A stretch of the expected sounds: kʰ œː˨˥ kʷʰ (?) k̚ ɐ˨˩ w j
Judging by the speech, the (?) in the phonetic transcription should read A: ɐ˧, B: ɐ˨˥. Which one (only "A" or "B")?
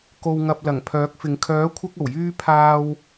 A